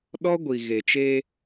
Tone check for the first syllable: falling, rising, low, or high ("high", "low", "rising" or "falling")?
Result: high